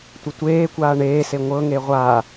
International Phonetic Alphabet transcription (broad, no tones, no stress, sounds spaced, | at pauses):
tʷ ə tʷ eː kʷ aː ɳ eː s e ŋʷ ɤ ŋ e ʁʷ a